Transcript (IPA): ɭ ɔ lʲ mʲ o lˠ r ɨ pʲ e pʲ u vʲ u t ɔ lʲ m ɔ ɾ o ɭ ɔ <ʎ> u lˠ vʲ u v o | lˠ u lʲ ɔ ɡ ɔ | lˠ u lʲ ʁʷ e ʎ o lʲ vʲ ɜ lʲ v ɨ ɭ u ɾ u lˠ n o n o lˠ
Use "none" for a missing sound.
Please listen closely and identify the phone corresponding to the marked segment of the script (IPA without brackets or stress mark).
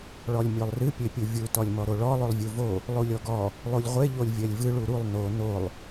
lˠ